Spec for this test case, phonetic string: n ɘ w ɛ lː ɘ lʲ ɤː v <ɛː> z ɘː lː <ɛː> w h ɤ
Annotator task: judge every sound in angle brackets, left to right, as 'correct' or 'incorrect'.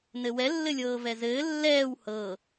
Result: incorrect: ɛ, correct

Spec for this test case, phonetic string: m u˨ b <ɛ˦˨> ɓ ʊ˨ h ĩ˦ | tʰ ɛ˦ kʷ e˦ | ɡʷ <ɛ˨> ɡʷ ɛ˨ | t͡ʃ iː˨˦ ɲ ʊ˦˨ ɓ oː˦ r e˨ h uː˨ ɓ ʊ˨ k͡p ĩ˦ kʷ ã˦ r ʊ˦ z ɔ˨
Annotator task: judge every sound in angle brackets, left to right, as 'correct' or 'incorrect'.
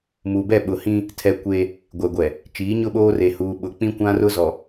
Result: correct, correct

